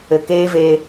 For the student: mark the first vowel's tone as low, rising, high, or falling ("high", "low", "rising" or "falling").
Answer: low